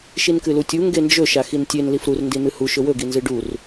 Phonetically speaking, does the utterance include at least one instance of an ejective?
no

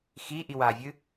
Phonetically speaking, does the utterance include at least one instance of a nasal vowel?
no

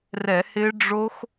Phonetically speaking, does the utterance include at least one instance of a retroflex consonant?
yes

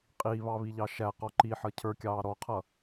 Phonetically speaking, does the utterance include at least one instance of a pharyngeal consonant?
yes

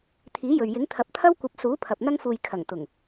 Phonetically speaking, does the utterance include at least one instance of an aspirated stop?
yes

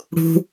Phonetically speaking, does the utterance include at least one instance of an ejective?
no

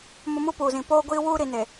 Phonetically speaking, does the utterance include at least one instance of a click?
no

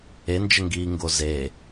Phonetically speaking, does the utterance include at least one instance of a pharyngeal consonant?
no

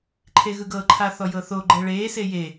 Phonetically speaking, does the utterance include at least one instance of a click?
yes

